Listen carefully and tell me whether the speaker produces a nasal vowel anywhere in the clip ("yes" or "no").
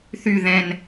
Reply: yes